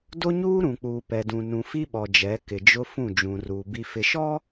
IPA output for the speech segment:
d o˦ ɲ uː˦ ɾ ũ˨ k͡p uː˨ p ɛ˨ d ũ˨ n ũ˨ f i˦ ɓ ɔ˨ d͡ʒ ɛ˨˦ k ɪ˨ d͡ʒ ʊ˦ f ũ˦˨ d͡ʒ ũ˨ r uː˨ b i˨ f ɪ˨ ʃ ɔ˦

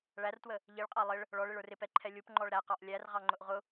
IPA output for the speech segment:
ɭ æ r t w ə | ʎ i ɭ qʼ ɑ lˠ ɪ ɭ | ɭ ɔ ɭ ɪ ɭ ə˞ r ɪ p ɛ ǃʰ ɛ lʲ u p ŋ͡ǃ ɔ ɭ ɾ æ q ɑ ʔ lʲ æ r ʁ ɑ ŋ͡ǃ ʊ ʔ ʁ ʊ

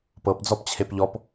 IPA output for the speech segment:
p ɤ p d͡z ɔ p t͡ɕʰ e p ʎ ɔ p

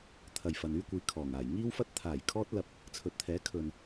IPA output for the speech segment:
t̪ʰ ɐ˨ j f ɐ˨ n yː˥ kʷ iː˨˧ kʰ ɔː˨˩ ŋ aː˨˩ j ŋ iː˥ w f ɐ˥ t̚ t̪ʰ aː˨˩ j kʰ ɔː˧ t̚ l ɐ˨ p̚ | t͡sʰ ɵ˨˥ t̚ t̪ʰ ɛː˨˥ kʰ ɵ˨ n

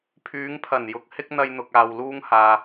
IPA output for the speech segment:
pʰ yː˨˧ ŋ pʰ ɐ˨˩ n j ʊ˨ k̚ h ɪ˥ k̚ n̪ ɐ˧ j n̪ ʊ˨ k̚ aː˨ w l uː˥ ŋ h aː˨

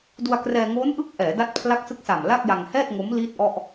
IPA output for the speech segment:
d u˧ a̯ k r ɛː˧ ŋ oː˦˥ n ʔ ɯ˦˥ k̚ ʔ ɛː˩˦ d a˦˥ t̚ pʰ l a˦˥ k̚ s ɯ˦˥ k̚ s a˨˩ m l a˥˩ k̚ j a˧ ŋ h ɛː˥˩ t̚ ŋ o˦˥ m l iː˥˩ t̚ ʔ ɔ˥˩ ʔ

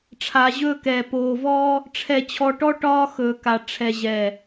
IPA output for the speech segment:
ʈ͡ʂʰ a˨ ʑ ɵː˦ k ɛː˨ p oː˨ v ɔ˦ | ʈ͡ʂʰ ɛ˨ t͡ɕʰ ɔ˨ ʈ ɔ˦ ʈ ɒː˦ x ɵː˨ k a˨ ʈ͡ʂʰ ɛ˨ ʑ ɛ˨

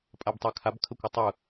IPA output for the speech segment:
pʼ a b tˤ a kʰ a b kʰ ə kʷ ə tˤ ɯ

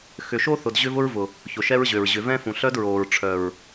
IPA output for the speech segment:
x ʏ˨ ʃ o˦ θ ʊ˨ d ʑ ʏ˦ v ʊ˦ ɹ v ʊ˨ | ç ʊ˨ ʃ ɛ˦ ɹ ʑ ø˨ ɹ ʑ ʏ˨ v ɛ̃˦ f ũ˨ ɬ œ˦ d ɹ oː˨ ɹ ʈ͡ʂʰ œ˨ ɹ

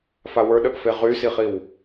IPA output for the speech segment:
f a w ə˞ ɗ ə ʔ f e ʁ y s i χ i w

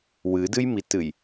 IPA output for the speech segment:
w ɨ d ɨ j m i t ɨ j

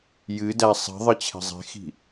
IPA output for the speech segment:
j ɨ d æ sˤ i̤ ðˤ ɨ t͡ɕʰ ɛ̤ zˤ e̤ x i̤

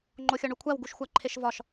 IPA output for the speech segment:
ŋ͡ǃ o xʲ ɒ ɳ u kʷʰ æ w ɡ u ʃ xʷ æ ǃʰ e ʃ v ɒ ʃ

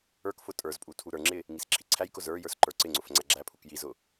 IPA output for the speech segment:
ə˞ k f ʊ tʼ ə˞ z pʼ u tʰ u ɾ ə˞ ŋ͡ǁ ɪ | ŋ i s ǁʰ i ǀʰ æ j k ʊ z ə˞ j ə˞ s ǃ ə˞ ǀ ɪ ŋ͡ǀ ʊ f ŋ͡ǀ æ ɡ͡ǁ æ pʰ u k j i z ʊ

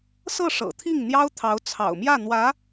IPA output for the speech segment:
s ɤ˥˩ ʂ ɤ̰˨˩ t̪ʰ i˥˩ ŋ n̪ j ɑ˥ ʊ̯ t̪ʰ ɑ˧˥ ʊ̯ t͡sʰ ɑ̰˨˩ ʊ̯ m j ä˥˩ n̪ w ä˧˥

